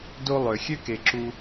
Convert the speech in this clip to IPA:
d o˦ lˠ ø˩ xʲ ø˥ k e˨ ǁ u˥

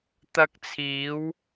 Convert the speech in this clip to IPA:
t̪ ɐ˧ k̚ t͡sʰ iː˨˧ w

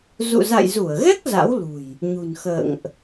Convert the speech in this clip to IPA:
z ṵ˧˨ z a̰˧˨ j z u˧˩ ə̯ ɣ ɛ˦˥ k̚ z a̰˧˥ w l ṳ˨˩ j | ɲ ṳ˨˩ n x ə̰ː˧˨ ŋ ʔ

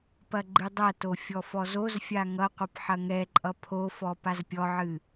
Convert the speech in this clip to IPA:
p ɐ ɡ͡ǃ ɨ dˤ ɐ t o fʲ ɔ f ɔ z o z fʲ a ŋ ʌ qʷ ʌ p ħ ɐ ŋ ɛ ǃʼ ʌ pʰ o f ɔ p a z pʲ ɔ ʕ ɨ

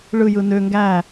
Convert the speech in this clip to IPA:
ɭ ɯ j ɯ n ø ŋ ɡ æ

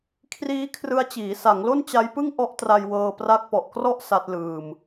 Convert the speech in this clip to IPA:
kʰ r iː˦˥ kʰ r ɯ˧ a̯ t͡ɕ iː˩˦ s a˩˦ ŋ l o˥˩ n t͡ɕ a˦˥ j p ɯ˥˩ ŋ ʔ ɔ˦˥ ʔ t r a˧ j w ɤː˧ p r a˦˥ k̚ p ɔ˨˩ ʔ k r ɔ˥˩ ʔ s a˦˥ t̚ l ɯː˧ m

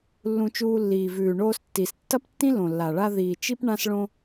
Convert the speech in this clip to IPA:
lː ũ˧ t͡ʃ uː˧ lː iː˩ v ʉː˩ ɳ oː˧ s tː i˩ s tː ɐ˥ p tː ĩ˥ l õ˩ lː a˩ ɭ a˧ ð iː˩ t͡ʃ i˧ p ɳ ã˧ s ɭ õ˧

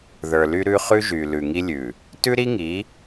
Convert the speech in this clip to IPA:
ð ə˞˨ l y˦ ɾ ʉ˦ χ ʉ˦ ʒ y˨ l ʉ˨ ŋ i˦ lʲ ʉ˨ | t ʉ˦ ɾ i˦ ŋ i˨˦

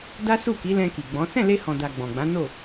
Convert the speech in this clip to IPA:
d a˦ s u˦˨ k i˨˦ l ɛ̃˧ k i˨ ɡ͡b ɔ̃˨˦ s ɛ̃˦˨ l e˧ h ɔ̃˨ d a˨ ɡ͡b ɔ̃˨ ɡ͡b ã˨˦ n o˦˨

